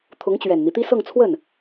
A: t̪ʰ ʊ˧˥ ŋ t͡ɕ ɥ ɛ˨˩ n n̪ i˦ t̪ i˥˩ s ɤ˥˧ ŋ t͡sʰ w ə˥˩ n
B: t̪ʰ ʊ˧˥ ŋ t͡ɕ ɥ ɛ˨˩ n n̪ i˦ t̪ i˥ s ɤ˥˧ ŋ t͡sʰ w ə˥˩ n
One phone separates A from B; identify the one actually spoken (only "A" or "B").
B